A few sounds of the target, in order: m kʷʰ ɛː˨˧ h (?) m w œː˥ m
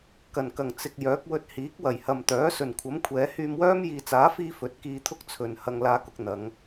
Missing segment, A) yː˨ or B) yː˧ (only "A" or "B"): B